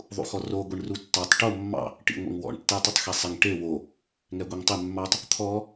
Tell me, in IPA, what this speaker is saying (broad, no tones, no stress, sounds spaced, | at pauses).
ðˤ ṵ x ɔ r o ɡʷ i ɳ r u tː ɑ tˤ ʈ o mː ɑ̰ | ʈ ḭ ŋʷ ḛ ŋ w ɔ̰ ɳ tː ɛ tˤ ɘ tˤ x e sˤ ɪ ŋ ʈ e w o | ŋ ɛ ɡʷ i ŋ tˤ ɪ mː ɑ tˤ | t̪ʰ ɔ